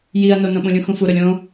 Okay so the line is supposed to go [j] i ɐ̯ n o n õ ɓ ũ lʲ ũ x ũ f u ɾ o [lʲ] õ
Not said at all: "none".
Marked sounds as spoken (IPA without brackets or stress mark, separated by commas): j, lʲ